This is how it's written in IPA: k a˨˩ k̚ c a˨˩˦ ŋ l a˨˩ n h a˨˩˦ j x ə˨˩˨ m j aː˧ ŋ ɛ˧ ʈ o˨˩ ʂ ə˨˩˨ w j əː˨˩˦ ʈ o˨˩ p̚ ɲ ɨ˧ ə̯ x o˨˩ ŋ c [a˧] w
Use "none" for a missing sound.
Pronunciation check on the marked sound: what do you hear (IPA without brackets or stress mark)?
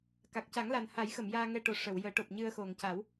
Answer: a˨˩˦